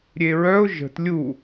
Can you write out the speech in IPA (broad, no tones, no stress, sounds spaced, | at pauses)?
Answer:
ɾʲ e ɹ œ ʊ̯ ʒ ə̤ t lʲ u